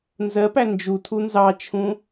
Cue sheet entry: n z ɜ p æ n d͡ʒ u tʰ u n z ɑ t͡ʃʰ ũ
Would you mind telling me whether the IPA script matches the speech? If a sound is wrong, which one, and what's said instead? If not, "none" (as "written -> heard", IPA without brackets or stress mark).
none